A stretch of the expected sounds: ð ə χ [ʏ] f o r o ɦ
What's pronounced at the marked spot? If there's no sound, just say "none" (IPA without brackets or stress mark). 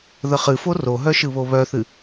ɨ